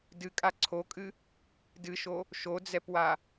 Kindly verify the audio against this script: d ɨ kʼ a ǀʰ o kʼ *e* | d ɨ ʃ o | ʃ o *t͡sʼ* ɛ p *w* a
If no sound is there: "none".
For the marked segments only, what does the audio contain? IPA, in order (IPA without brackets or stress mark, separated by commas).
ɨ, d͡z, w